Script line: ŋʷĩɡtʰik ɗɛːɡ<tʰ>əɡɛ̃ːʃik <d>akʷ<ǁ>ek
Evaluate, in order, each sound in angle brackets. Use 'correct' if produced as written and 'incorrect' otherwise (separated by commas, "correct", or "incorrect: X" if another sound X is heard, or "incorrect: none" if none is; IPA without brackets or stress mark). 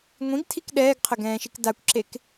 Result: incorrect: qʰ, correct, correct